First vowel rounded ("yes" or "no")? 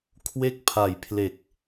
no